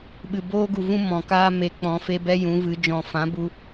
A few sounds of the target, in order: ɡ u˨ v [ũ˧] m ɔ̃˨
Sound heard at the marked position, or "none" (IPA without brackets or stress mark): ũ˦